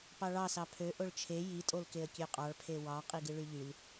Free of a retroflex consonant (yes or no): no